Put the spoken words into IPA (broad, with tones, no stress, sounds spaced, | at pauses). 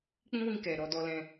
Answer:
k͡p ĩ˦ w ĩ˧ k ɛ˨ ɾ ɔ˧ d ɔ˧ l ɛ̃˧